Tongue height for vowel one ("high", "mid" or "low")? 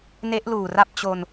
mid